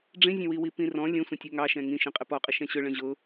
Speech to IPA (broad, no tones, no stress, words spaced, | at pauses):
ɖ͡ʐĩzʲə̃wiwi pĩrɔ̃ lʲə̃ sʷə̃tʲɛŋɑʃɛ̃ ŋĩ ʃĩqʼɪpɔqʼɪ ʃɛ̃ɕʊ ɭə̃ʑʊ